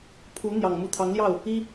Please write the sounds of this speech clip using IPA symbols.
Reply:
pʰ u˧˥ n̪ j ɑ˨˩ ŋ m u˧˥ t̪ʰ ɑ˧˥ ŋ l j ɑ˥˩ ʊ̯ | i˥

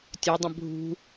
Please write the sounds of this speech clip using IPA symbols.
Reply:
tʲ ɵ dˤ ə̃ bʱ ṳ

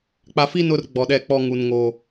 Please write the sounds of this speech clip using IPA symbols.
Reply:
k͡p a˨ f i˦ n ʊ˦ r ɡ͡b ɔ˨ ɗ ɛ˦˨ k͡p ɔ˦ ŋ u˨ n ŋ oː˨

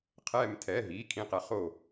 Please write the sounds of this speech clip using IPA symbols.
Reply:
qʰ ɛː˧˩ m tʰ ɛ˩˧˩ ɦ iː˩˧˩ kʰ ĩ˧˩ q ɛ˨˦ χ oː˧˩

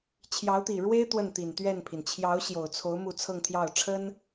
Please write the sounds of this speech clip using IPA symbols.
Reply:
t͡ɕʰ j ɑ˧˥ ʊ̯ t̪ i˨˩ ɻ w e˥ ɪ̯ t̪ w ə˥˩ n t̪ i˨˩ n t̪ ɥ ɛ˥˩ n pʰ i˩ n t͡ɕʰ j ɑ˧˥ ʊ̯ ɕ j o˨˩ ʊ̯ t͡sʰ o˧˥ ʊ̯ m u˥˧ t͡sʰ ɤ˥˧ ŋ t̪ʰ j ɑ˥˩ ʊ̯ ʈ͡ʂʰ ə˥ n

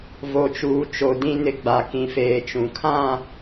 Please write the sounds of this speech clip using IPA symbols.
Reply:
v o˨ t͡ʃ uː˨ t͡ʃ o˨ d ĩ˨ n ɪ˨ ɡ͡b a˨ k ĩ˨ f eː˨ t͡ʃ ũ˨ kʰ ã˦˨

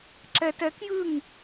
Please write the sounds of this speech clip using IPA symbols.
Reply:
ǁ ɛ t ɛ k j ɯ ŋ

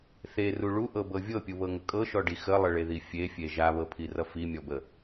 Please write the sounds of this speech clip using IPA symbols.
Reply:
θ e r u ɭ u ʔ ɤ b ɤ vʲ ɤ pʲ u β ɤ ŋ ə kʼ ɤ ʃ ɔ ɖ i x ə lˠ ə ɭ e ð i fʲ e fʲ e ʒ a β ɤ pʰ i r ʌ f i mʲ ɔ b ə

